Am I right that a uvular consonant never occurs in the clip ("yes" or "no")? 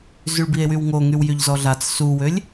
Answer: yes